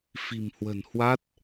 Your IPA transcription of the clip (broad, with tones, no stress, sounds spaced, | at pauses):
f i̤˨˩ m h w ə̤˨˩ n h w a˦˥ t̚